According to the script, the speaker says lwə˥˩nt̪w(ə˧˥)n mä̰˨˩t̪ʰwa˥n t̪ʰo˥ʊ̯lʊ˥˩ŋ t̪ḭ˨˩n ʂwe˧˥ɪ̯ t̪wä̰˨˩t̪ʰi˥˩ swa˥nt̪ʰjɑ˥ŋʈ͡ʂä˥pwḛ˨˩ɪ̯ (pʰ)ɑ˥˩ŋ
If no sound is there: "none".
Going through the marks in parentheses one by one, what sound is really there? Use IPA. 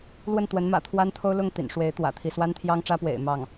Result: ə˧˥, m

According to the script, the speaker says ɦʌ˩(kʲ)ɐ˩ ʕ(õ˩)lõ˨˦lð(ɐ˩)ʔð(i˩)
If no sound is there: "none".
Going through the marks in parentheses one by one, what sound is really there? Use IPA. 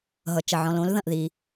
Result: t͡ʃ, ɔ̃˩, ɐ̃˩, i˩

